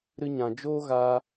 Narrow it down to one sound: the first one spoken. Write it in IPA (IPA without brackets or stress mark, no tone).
ɾ